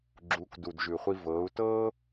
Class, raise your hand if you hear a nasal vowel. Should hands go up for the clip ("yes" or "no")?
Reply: no